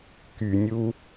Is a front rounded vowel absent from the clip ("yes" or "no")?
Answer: no